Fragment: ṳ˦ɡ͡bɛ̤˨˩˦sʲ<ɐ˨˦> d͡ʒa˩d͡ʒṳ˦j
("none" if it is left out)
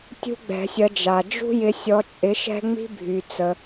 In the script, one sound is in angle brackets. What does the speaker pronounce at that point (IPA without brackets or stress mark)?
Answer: ɐ˨˦